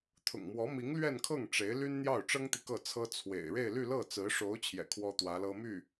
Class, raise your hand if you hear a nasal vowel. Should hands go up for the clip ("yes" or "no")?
no